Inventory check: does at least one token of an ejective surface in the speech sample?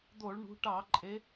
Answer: yes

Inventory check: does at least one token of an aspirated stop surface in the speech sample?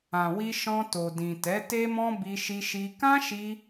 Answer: no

